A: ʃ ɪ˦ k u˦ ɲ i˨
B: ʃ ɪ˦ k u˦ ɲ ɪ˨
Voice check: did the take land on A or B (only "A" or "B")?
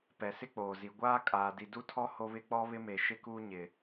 B